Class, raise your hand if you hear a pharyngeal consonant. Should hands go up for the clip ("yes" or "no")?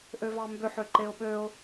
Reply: yes